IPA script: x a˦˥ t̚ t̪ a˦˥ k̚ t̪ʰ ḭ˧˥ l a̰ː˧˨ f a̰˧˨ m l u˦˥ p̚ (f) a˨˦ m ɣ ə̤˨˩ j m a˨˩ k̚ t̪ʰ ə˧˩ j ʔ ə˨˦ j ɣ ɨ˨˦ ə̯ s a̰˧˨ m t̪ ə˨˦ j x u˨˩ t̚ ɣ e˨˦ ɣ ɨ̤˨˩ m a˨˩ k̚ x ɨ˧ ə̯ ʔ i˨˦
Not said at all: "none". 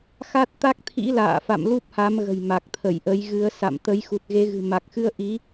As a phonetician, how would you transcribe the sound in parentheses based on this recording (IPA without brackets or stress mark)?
h